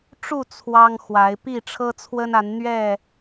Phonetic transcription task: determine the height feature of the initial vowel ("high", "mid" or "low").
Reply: high